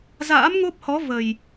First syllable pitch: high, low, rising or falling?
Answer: rising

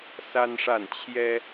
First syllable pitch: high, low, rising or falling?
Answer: high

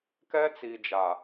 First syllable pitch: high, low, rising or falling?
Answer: high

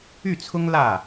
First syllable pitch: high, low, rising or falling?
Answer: falling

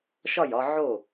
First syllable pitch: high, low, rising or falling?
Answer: falling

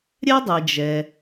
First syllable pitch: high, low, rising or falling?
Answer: high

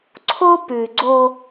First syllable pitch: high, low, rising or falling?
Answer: high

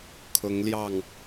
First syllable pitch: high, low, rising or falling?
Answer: rising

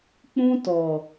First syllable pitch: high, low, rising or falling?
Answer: high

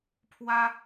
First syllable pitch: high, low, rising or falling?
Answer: high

